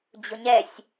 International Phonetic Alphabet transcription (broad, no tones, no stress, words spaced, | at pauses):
d͡ʑʊɲɛsʲ